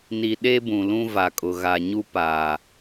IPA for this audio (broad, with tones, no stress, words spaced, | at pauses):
ni˨ɗe˦ bũ˨lũ˦va˨kʼʊ˨ ɣa˨ɲu˦paː˨